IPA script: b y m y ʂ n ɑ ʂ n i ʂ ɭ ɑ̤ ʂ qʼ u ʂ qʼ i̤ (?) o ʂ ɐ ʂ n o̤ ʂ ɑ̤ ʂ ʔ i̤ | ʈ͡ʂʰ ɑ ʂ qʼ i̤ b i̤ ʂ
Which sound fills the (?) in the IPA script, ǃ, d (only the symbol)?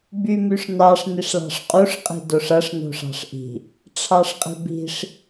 d